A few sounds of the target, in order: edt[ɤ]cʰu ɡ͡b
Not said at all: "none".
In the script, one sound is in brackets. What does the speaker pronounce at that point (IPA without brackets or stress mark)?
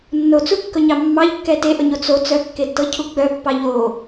ɤ